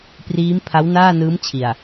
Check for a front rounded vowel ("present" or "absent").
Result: absent